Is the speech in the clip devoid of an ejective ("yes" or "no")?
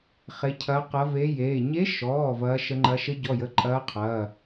no